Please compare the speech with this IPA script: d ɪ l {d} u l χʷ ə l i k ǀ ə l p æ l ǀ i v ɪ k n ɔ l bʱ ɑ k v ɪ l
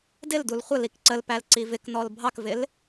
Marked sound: correct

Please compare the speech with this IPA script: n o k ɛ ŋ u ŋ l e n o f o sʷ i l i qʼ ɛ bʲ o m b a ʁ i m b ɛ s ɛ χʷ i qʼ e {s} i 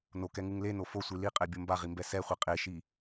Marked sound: incorrect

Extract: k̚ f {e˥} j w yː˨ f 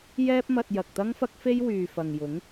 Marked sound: correct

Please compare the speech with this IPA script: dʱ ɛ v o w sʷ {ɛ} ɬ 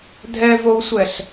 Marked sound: correct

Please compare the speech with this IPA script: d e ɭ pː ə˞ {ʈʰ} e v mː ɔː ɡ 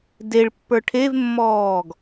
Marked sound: correct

